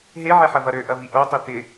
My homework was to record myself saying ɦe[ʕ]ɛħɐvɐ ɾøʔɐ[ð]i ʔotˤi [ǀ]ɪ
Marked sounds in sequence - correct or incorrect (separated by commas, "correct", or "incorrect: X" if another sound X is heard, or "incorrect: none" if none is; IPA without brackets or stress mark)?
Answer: correct, incorrect: v, incorrect: t̪